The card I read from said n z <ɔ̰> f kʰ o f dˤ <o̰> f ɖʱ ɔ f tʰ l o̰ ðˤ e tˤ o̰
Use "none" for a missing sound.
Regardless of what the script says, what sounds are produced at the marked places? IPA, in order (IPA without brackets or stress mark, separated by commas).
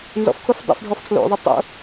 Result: ɔ̰, o̰